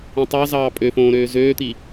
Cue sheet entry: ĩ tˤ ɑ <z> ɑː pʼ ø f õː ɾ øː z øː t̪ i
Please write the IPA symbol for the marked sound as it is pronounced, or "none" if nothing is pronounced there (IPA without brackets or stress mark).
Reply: z